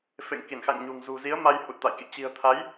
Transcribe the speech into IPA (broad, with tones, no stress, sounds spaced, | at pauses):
f ḛ˧˨ ŋ k i˧˩ n x a̰˧˨ ŋ ɲ ṳ˨˩ ŋ z ṳ˨˩ z i˨˦ ə̯ m a˧ j h u˨˩ t̚ t̪ a̰˧˨ j k ḭ˧˨ t͡ɕ i̤˨˩ ə̯ t̪ʰ a˨˦ j